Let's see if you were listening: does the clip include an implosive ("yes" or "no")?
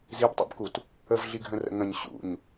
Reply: no